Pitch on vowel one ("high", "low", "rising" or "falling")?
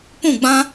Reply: falling